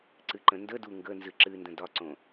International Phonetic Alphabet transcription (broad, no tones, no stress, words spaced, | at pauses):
ǀɨǃə̃ndədu ŋɡə nzɨǁɨndə̃ dɒǀõ